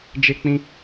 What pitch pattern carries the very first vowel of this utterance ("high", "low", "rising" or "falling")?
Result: high